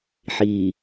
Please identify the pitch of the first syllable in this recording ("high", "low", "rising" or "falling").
low